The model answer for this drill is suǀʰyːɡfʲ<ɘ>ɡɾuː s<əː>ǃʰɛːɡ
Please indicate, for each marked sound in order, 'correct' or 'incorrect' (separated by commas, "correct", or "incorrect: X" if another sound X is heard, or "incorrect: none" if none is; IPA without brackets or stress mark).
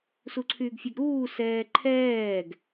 incorrect: ɛ, incorrect: ɛː